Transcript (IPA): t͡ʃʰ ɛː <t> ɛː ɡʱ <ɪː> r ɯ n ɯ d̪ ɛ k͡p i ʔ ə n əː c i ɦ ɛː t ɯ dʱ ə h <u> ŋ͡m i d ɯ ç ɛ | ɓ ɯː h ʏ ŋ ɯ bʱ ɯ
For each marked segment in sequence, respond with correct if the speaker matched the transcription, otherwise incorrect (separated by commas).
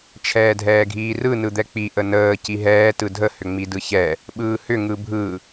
incorrect, incorrect, incorrect